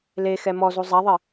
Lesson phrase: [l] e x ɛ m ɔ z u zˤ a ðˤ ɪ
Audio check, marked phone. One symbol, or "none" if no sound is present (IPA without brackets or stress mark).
l